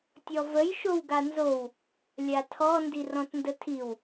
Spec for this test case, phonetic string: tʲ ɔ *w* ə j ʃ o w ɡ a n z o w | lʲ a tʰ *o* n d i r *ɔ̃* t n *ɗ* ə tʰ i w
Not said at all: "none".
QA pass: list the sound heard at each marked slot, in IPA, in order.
v, ɔ, ɔ̃, d

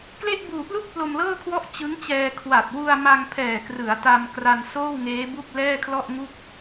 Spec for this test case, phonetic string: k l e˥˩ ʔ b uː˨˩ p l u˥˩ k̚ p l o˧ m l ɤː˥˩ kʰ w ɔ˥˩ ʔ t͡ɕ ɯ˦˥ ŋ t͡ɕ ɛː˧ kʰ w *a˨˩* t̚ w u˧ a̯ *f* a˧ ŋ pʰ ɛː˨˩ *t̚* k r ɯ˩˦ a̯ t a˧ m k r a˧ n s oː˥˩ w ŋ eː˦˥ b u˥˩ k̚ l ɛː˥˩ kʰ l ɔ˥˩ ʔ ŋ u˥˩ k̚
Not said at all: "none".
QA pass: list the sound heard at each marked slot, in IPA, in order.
a˨˩, m, none

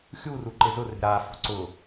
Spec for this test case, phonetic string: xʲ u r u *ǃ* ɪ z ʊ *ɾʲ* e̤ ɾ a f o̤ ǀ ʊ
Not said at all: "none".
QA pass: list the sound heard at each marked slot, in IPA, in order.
ǃ, r

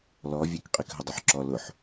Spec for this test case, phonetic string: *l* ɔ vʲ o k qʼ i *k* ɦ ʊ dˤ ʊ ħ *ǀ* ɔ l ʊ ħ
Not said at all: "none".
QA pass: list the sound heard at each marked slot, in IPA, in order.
l, k, ǁ

